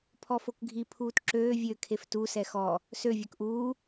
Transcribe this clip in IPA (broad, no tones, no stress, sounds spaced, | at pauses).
pʰ ɔ f o k ɡʱ i pʰ uː t ǁ øː vʲ ø kʰ e f t u s ɛ x ɔ | s ø vʲ œ k ʔ uː